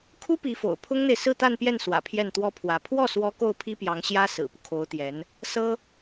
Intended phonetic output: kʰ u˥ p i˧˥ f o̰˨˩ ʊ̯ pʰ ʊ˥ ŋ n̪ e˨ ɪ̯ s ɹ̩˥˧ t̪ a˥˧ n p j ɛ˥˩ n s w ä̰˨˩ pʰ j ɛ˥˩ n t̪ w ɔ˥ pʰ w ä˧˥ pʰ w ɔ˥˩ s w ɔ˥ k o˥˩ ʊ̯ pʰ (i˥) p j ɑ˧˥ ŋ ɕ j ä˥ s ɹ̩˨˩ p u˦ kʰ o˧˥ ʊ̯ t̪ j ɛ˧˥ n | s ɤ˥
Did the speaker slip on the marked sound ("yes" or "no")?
no